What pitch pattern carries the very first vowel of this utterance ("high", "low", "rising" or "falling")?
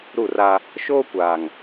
falling